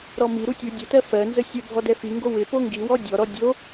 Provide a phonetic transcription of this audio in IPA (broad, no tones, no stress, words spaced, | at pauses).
ɾɔmi ɾutʲu dʲətɜ fɜnzə sʲə bʱɔdɛfiŋɡo wɪ poŋɡiwɔ dʲɔɾɔ dʲo